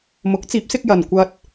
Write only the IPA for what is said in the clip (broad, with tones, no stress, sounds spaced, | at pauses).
m ʊ˨˥ k̚ t͡s iː˨˥ p̚ s ɪ˧ k̚ j ɐ˧ n kʷ ɐ˥ t̚